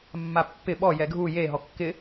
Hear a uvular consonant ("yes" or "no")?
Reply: no